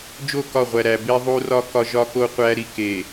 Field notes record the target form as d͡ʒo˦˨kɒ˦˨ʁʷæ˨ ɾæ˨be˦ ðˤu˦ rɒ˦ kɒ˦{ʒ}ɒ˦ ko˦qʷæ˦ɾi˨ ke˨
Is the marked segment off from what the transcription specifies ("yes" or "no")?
no